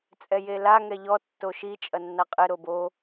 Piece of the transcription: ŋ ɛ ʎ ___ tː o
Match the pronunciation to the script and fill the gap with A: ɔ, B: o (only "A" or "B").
A